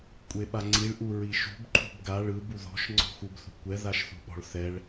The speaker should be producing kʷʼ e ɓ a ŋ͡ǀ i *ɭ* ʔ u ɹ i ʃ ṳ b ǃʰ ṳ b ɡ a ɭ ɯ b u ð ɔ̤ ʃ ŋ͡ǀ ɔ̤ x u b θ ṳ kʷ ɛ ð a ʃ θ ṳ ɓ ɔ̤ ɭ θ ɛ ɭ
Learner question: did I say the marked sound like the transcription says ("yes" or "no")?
yes